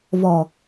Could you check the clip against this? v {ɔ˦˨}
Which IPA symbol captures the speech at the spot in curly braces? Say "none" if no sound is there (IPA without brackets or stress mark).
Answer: ɔ˨